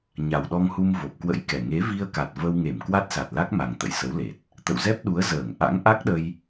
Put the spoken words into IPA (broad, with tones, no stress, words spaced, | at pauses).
ɲa˨˩wɗɔ˧ŋhu˧m vo˨˩p̚kwə̰˧˥jkɛ˨˩ ŋe˨˦vi˧ə̯ka˨˩t̚ və˧wŋe˧˩m kwa˦˥t̚sa˨˩t̚la˦˥k̚ma˨˩ŋ t̪ə̰˧˨jsə˨˦wle˨˩t̚ | t̪ə̰˧˨wzɛ˦˥p̚ɗu˨˦ə̯ zəː˧˩ŋ ʔa̰˧˥ŋʔa˦˥k̚ɗə˧j